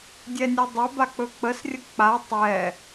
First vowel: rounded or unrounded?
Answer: unrounded